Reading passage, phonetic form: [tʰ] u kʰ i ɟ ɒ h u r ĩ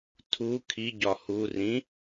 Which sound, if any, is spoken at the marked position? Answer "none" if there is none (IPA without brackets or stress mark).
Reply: tʰ